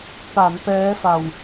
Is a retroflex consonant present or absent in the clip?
absent